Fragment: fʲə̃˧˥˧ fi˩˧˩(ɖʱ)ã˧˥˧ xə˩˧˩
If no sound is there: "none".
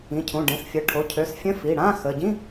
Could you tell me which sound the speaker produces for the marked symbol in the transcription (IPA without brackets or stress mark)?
ɽ